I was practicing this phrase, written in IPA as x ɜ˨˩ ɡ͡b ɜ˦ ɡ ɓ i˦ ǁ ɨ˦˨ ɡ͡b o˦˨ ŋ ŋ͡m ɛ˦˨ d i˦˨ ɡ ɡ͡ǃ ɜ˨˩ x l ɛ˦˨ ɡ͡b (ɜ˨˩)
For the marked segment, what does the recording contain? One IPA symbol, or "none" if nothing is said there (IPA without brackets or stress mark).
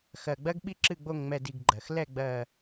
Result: ɜ˨˩